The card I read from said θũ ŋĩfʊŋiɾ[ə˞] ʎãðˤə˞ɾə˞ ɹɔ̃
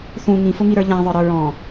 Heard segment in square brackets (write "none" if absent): ə˞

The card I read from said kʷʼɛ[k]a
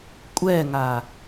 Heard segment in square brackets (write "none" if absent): ŋ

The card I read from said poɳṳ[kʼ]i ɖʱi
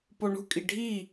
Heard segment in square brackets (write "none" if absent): kʼ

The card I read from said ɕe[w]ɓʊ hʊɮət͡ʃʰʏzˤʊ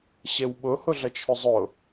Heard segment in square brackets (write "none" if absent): w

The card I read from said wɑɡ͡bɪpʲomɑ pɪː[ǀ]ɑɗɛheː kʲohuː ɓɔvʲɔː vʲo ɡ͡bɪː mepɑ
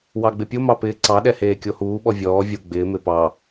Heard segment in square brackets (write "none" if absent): ǀ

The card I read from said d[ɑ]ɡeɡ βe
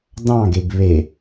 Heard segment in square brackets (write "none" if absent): ɑ̃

